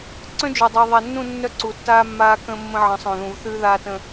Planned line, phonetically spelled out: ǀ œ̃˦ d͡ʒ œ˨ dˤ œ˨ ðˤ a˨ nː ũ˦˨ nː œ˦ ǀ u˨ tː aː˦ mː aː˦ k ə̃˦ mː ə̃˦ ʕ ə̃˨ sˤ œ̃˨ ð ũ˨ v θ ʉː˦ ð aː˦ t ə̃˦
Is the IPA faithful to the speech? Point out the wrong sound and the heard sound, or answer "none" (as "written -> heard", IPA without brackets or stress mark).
none